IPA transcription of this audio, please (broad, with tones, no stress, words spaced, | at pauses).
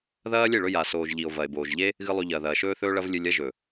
ðɐː˦lʲe˦˨ɭɵ˧ ja˨soː˨ʒ ʎi˨o̯vɐ˨e̯ boː˨ʒʎe˦ | ɣɨ˦lˠʉ˧ ʎɐː˨ðɐː˨ʃɵː˦θɵː˦ ɭɐ˦vlʲɨ˧lʲɐ˦ ʒɵ˨